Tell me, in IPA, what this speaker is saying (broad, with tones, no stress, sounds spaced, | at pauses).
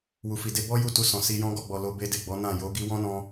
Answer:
w u˨ f i˨ d e˧ b ɔ˦ j u˦˨ t u˧ s ɔ̃˨ s i˧ j ɔ̃˦ ɡ ɔ˦˨ ɡ͡b ɔ˨ l o˧ b e˦ d e˦˨ ɡ͡b ɔ˨˦ n ã˦˨ j o˨˦ ɡ i˦ w ɔ̃˦ n ɔ̃˧